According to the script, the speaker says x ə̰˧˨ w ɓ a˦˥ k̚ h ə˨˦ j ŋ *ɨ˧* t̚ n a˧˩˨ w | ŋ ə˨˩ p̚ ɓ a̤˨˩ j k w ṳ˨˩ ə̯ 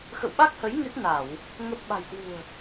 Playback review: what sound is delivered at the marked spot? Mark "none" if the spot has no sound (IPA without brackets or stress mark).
ɨ˦˥